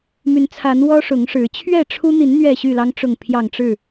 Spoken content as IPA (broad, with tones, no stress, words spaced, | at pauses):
my˨˦nt͡sʰa˨˦n wɔ˦ʂʊ˨˦ŋʂɻ̩˨˦ t͡ɕʰɥɛ˥˨ʈ͡ʂʰu˦n̪i˨˦n n̪ɥɛ˥˨ɕy˥˨lɑ˦ŋ ʈ͡ʂʊ˥˨ŋpʰjɑ˥˨ŋ ʈ͡ʂɻ̩˥˨